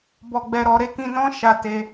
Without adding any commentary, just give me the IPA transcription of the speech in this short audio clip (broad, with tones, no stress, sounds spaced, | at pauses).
b ɔ˨ ɡ͡b ɛ˨ ɾ ɔ˨ ɾ e˧ k ĩ˧ n ɔ̃˦ ʃ a˧ t e˧